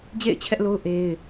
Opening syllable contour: falling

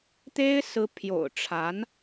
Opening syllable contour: high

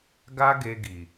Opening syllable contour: high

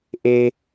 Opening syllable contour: high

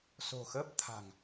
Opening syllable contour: low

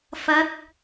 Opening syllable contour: rising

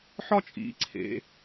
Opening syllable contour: high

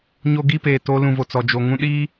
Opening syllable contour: high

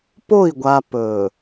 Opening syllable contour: falling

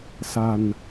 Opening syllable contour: low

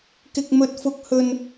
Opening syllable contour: high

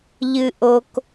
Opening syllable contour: low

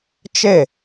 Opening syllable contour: falling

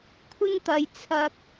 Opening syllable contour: high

